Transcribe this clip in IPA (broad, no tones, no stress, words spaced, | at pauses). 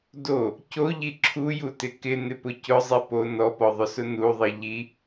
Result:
do | coʎi ǁʰujutɪ kɪnɪpʊ cʊzˤi po nɔpɔðˤʊsʊ nuðˤi ʎi